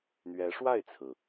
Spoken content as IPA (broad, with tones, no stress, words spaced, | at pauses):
n̪ɥɛ˧˥ʂwa˥˩ɪ̯t͡sʰɹ̩˩